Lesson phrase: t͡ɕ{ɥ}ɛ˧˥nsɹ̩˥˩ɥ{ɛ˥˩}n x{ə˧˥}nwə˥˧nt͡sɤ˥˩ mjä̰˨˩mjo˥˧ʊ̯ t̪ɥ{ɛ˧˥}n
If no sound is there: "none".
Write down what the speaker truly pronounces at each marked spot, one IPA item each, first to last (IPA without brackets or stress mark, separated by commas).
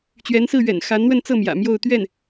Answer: ɥ, ɛ̰˨˩, a˧˥, ɛ˥˩